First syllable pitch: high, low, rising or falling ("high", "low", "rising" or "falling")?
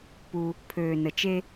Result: low